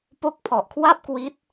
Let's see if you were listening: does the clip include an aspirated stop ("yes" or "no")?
yes